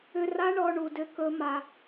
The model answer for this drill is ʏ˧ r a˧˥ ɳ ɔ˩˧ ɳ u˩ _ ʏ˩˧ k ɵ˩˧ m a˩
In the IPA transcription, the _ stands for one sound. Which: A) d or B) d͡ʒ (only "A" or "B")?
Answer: A